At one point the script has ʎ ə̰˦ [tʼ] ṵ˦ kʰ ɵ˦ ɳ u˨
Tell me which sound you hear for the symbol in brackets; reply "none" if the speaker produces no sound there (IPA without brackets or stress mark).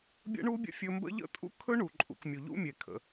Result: tʼ